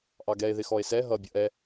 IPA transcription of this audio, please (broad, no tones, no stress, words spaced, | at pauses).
ʔɑɡɛe̯ ðɪxɔe̯sɛ ɦʌ bʲʌʔɛ